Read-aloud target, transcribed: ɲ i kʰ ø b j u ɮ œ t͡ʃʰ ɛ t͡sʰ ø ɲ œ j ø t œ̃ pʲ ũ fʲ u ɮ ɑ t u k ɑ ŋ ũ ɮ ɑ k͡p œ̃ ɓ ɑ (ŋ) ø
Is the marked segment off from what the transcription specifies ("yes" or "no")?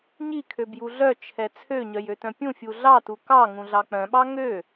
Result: no